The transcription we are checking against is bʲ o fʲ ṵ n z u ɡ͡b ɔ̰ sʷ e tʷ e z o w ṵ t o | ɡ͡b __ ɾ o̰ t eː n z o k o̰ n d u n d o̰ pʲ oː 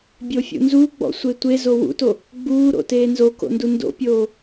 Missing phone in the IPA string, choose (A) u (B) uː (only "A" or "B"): B